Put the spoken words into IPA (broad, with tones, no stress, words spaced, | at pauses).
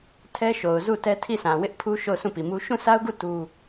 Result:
tʰɛ˦ʃo˨ʊ̯zu˦˨ tɛ˦tʰi˦˨sʰã˨ wɪ˦ʔ pʰu˦ ʃo˦˨ʊ̯sũ˦˨pi˨mu˦ ʃũ˦˨sa˦ʊ̯ɡu˦˨ tu˦